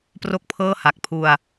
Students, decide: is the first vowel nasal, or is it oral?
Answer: oral